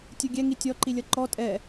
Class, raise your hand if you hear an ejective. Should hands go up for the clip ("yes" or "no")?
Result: yes